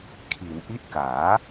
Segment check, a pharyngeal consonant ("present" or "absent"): absent